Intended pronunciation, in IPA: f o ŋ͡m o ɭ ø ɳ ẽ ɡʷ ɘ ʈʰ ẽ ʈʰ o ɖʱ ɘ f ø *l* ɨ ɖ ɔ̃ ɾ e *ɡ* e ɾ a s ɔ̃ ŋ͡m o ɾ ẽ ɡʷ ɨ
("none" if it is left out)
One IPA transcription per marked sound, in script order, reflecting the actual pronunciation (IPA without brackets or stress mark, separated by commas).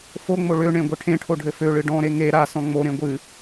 ɭ, ŋ